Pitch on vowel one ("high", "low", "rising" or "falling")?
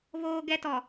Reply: high